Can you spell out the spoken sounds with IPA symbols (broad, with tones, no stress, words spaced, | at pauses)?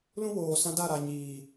lũ˦ woː˨sã˦ da˦˨ɾa˨ ɲiː˨